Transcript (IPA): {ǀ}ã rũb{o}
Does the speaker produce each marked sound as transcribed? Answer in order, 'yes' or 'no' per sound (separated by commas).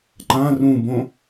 no, no